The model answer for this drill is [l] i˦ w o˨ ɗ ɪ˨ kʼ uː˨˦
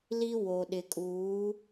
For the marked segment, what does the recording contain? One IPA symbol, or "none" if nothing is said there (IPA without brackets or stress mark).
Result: l